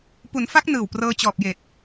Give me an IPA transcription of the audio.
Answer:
p u˩˦ n f a˦˥ k̚ n ɯː˨˩ w p r ɤː˧ t͡ɕ ɔː˨˩ p̚ j eː˨˩ t̚

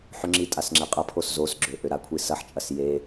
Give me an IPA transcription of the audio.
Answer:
ħ ʏ ŋ͡ǁ i tʼ a s ŋ͡ǁ e qʼ ɐ pʰ o s z o s ɡ͡ǁ ø ʔ ø ɾ a kʷʰ i s ɐ ħ t͡ʃʼ ɐ s j e

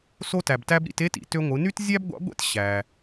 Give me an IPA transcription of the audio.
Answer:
s o˧ t æ˩ b t æ˧ b ɾ ḭ˧ t e˥ t ḭ˩˧ t ø˧ ŋʷ ɯ˩˧ n y˥ t zʲ æ˥ b ɡʷ ɑ̰˧˥ ɡʷ ḛ˥ t ɕ æ˩

